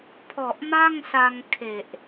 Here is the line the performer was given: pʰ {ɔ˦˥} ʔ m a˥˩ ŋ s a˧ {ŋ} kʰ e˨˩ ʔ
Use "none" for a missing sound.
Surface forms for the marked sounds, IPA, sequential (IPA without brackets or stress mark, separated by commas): ɔ˨˩, ŋ